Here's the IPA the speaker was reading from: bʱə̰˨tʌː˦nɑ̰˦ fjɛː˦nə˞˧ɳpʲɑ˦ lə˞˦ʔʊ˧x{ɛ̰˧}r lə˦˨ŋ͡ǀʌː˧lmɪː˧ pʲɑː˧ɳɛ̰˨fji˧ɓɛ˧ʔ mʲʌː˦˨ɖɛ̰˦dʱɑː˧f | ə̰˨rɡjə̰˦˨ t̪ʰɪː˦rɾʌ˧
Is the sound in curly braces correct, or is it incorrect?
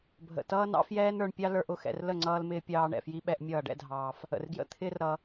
correct